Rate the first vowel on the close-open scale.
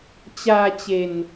open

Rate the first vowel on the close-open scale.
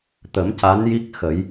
mid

